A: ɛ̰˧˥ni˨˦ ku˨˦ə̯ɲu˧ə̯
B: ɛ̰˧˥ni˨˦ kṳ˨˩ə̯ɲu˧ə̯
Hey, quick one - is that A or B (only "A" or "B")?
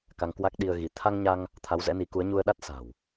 A